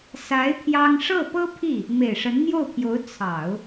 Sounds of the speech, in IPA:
sa˧˥ɪ̯ pʰjɑ˥ŋ ʂɤ˥˩pɤ˥ pʰi˥˩ | me˨˩ɪ̯ʂə˧˥nn̪jo˥˩ʊ̯pʰjo˧˥ʊ̯ t͡sʰɑ˨˩˦ʊ̯

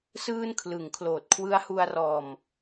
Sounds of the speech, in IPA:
sɯː˥˩nkʰlɯ˨˩ŋ kʰloː˨˩t̚kʰwɯ˦˥a̯hu˧a̯rɔː˨˩m

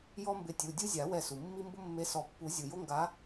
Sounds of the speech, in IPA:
jɔ˦mbɪ˨˦tʲu˩˧˩ dʲu˦zʲa˨˩˦ wɛ˧˩su˩mːi˦ mbʊ˦mːe˨˦sɔ˨˩˦pːu˨˩˦ zʲu˩jo˦ŋɡa˨˦

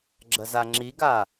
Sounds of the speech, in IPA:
ɡ͡ǁɐzaŋ͡ǁiɡa

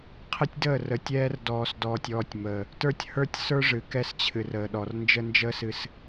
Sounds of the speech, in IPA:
qʰə˦tʲdəː˦˨rə˨tʲɛː˦r dɔː˨sdɔː˨tʲɔː˨tʲ məː˨ | tə˞˦tʲhə˞˦tʲ sə˞˦ʐɨ˨ kɛ˦st͡ɕʰɨ˨r əː˨ɗɔ˨r nd͡ʒə˦nd͡ʒəː˦sɨ˨s

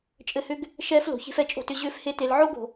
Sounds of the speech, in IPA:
t͡ʃʼɘ˨hʏ˧ɡ | ʃɛː˧f lo̤˨çe̤˧fɛ˨ t͡ʃʼo̤˧tʏ˧ ʑʏː˦f he˦te˧l ʕo˦ɡo̤˨

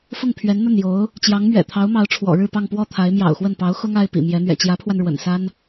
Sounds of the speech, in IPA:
fʊ˥˩ŋpʰɥɛ˧˥n n̪ə˥˩njo˧˥ʊ̯ | t͡ɕjɑ˧˥ŋmɥɛ̰˨˩ t̪ʰɑ˧˥ʊ̯mɑ˧˥ʊ̯ʈ͡ʂʰwɔ̰˨˩ ɻɻ̩˥˧pɑ˥˧ŋpwɔ˥˩ t̪ʰa˧˥ɪ̯mjɑ̰˨˩ʊ̯xwə˥˩n pɑ˧˥ʊ̯xʊ˥ŋ a˥ɪ̯pḭ˨˩mjɛ˧˥ n̪ɥɛ̰˨˩t͡ɕjä˧˥pʰwa˧n ɻwə̰˨˩nsa˥n

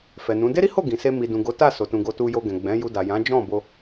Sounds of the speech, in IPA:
fɛ˨nũ˨˦ de˦ɾi˦ho˦˨ ɡĩ˨se˧ mi˨dũ˨ ɡo˨˦ta˦˨ so˨tũ˨ ɡo˧tu˧jo˧ɡɛ̃˨ ɡ͡bɛ̃˨˦ ju˧da˨ jã˨˦d͡ʒɔ̃˦˨ bo˧

